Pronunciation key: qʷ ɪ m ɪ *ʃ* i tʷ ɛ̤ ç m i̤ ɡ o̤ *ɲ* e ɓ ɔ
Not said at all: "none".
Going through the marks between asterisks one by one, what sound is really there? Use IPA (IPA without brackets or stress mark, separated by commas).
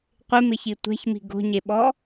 ç, ɲ